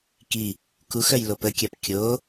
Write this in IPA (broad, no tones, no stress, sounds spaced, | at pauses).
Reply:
k i | k u x œ j l o p ə kʲ a p kʲ o